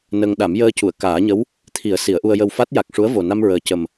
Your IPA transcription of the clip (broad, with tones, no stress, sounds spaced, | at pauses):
n ə˧ ŋ ɗ a˨˩˦ m j əː˧ c u˨˩˨ ə̯ k aː˨˩˦ ɲ ə˧˥ w | t̪ʰ i˨˩˦ ə̯ s i˨˩˦ ə̯ ʔ u˧ ə̯ j ə˧ w f a˦˥ t̚ j a˨˩ k̚ ʂ u˧˥ ə̯ v o˨˩ n a˧ m ɹ əː˨˩ c ə˨˩ m